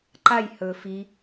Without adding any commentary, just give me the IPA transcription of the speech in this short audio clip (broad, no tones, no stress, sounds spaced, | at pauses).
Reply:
ǃ a j h ɵ f i